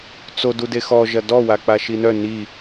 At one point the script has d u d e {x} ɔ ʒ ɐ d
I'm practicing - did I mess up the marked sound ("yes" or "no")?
no